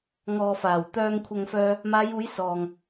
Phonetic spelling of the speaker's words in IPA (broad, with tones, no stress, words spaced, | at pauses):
ŋɔː˨faː˨˩wt̪œː˧ŋ kʷʰɐ˧ŋfœː˧ | maː˨˧juː˨˧j sɔː˨ŋ